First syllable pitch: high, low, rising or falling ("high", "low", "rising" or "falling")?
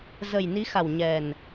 low